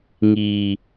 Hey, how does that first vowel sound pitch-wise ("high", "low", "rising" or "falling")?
low